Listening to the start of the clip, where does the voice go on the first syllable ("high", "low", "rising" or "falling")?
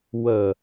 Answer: low